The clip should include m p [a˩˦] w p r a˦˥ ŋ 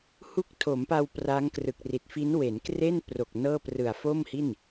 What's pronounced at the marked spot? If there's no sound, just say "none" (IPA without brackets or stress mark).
a˧